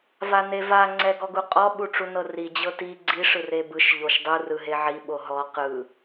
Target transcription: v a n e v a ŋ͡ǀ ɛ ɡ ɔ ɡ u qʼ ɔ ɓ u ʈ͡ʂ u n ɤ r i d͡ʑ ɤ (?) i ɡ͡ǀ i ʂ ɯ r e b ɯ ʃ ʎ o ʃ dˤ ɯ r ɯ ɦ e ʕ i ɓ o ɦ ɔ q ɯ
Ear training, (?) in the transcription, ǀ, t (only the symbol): t